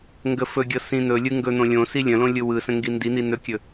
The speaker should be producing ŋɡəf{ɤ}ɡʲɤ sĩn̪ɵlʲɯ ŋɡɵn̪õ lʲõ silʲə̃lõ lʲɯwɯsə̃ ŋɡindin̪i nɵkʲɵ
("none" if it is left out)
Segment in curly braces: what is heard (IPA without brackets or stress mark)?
ɵ